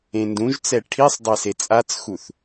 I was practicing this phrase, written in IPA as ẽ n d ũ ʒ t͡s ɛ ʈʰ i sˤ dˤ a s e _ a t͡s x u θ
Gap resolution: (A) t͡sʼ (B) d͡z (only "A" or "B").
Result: A